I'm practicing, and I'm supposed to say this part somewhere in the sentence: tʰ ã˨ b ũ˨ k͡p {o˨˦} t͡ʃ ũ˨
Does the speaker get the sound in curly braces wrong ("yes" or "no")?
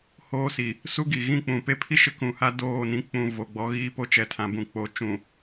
no